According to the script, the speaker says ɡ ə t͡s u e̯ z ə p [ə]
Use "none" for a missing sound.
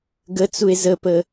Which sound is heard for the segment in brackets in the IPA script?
ə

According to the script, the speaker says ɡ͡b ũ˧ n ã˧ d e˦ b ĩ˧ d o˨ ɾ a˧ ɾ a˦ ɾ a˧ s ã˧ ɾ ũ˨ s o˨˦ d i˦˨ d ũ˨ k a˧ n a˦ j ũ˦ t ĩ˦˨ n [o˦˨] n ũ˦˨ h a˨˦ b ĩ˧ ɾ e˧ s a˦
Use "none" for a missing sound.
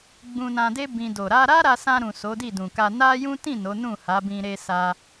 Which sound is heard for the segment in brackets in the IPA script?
o˨˦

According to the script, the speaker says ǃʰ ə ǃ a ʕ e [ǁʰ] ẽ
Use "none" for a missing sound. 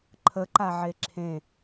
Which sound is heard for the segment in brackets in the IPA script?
ǁʰ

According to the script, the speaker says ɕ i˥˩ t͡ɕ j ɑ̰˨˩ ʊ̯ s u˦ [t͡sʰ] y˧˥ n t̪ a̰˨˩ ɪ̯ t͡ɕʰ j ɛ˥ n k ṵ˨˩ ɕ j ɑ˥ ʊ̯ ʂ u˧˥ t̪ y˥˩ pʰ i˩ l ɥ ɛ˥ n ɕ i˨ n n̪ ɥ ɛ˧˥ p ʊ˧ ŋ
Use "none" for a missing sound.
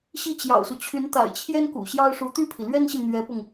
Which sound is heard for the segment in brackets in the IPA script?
t͡ɕʰ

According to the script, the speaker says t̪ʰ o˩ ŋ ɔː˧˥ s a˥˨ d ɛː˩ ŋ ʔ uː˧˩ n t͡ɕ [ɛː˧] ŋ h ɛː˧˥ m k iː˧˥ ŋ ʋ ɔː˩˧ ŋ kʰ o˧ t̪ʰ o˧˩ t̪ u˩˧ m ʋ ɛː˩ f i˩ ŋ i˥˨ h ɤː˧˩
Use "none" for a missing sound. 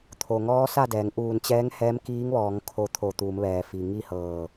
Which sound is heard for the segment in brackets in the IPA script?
ɛː˧˥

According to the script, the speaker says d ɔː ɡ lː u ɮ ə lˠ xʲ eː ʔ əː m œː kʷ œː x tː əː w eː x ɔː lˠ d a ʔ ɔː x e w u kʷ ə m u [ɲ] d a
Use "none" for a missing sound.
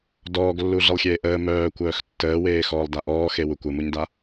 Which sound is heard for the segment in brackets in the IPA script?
ɲ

